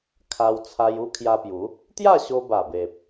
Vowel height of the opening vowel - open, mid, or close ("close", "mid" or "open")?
open